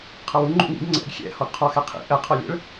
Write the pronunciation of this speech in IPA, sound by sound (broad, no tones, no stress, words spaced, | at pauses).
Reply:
qʰʌwu ŋ͡ǃṵŋḭɡ ŋ͡ǀɛ̰ɡ xʲɛ̰ hɔɡqʰɔ xɛqʰḭ ʔɛ qʰɔlʲɛ̰ɭ